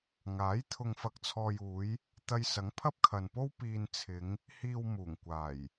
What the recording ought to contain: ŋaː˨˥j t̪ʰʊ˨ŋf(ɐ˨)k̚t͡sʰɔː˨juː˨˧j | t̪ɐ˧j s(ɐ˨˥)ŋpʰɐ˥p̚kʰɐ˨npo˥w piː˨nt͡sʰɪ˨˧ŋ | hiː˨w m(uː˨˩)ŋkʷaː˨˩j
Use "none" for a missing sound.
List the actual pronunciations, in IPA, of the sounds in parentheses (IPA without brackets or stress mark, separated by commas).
ɐ˨, ɐ˨˥, uː˨˩